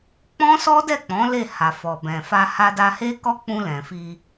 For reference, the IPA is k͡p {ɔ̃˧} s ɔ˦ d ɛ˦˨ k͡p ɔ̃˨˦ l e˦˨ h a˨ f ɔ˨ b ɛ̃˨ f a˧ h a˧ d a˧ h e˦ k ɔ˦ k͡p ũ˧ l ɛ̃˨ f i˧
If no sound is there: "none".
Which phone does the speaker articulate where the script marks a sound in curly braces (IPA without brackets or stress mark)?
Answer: ɔ̃˦